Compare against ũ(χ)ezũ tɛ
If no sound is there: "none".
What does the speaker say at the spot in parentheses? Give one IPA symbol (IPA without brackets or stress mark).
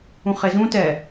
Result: χ